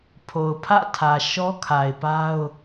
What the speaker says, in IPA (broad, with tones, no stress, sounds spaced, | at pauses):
pʰ o˨ ʊ̯ pʰ ä̰˦˨ tʰ ä˨ ʃ ɔ˦ kʰ a˨ ɪ̯ p a˦ ʊ̯